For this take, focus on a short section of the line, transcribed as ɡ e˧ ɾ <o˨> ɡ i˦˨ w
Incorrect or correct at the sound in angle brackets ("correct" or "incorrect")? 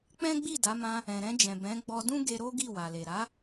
incorrect